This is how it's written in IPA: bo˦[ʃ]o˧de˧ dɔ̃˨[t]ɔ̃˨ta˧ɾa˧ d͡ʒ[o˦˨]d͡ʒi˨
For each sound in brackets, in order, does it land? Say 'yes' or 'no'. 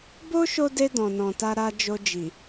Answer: yes, no, no

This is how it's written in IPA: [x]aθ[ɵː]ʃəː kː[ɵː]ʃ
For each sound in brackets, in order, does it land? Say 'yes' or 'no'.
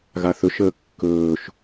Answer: no, no, yes

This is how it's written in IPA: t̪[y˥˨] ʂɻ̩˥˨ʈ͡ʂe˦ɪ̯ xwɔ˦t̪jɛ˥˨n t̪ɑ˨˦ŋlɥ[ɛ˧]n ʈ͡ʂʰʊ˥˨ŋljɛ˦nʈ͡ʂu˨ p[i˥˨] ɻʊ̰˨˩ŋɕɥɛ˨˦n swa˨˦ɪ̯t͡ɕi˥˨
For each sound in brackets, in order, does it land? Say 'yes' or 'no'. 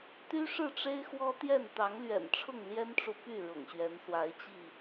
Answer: no, no, no

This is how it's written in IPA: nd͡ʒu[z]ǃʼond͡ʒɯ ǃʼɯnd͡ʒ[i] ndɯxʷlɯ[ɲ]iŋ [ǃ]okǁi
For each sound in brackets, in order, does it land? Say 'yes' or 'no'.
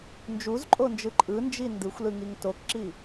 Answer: yes, yes, no, no

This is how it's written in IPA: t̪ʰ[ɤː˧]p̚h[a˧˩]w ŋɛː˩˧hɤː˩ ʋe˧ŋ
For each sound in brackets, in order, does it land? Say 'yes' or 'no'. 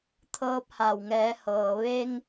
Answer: yes, yes

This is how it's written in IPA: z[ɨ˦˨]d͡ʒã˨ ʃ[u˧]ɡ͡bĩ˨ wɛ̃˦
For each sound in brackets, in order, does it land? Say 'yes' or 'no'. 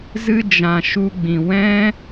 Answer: no, yes

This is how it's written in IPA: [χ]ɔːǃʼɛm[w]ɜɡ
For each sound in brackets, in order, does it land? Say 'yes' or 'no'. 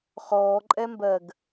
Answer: yes, no

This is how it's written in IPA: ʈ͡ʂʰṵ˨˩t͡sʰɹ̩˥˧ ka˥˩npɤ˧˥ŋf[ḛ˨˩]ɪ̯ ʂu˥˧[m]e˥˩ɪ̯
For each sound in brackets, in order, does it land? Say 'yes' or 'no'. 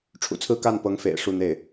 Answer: yes, no

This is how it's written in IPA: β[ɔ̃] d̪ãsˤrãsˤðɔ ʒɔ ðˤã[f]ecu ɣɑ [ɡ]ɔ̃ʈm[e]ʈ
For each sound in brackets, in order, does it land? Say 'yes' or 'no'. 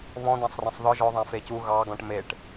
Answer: yes, yes, yes, yes

